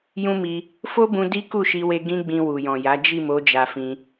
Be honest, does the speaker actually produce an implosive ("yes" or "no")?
no